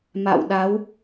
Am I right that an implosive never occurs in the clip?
no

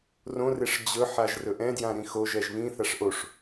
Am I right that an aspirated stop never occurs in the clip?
yes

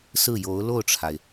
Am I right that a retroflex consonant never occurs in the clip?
no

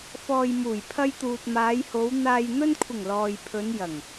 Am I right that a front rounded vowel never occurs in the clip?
yes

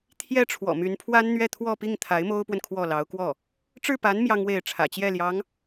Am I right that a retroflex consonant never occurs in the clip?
no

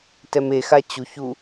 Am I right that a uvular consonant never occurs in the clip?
yes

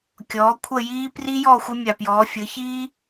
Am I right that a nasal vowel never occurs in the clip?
yes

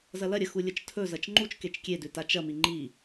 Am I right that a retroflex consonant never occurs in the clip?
yes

